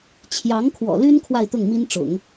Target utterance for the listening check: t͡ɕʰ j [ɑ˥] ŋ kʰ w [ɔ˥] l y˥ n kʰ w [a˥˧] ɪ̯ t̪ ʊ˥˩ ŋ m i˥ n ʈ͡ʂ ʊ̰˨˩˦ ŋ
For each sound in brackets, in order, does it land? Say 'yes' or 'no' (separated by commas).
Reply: no, no, yes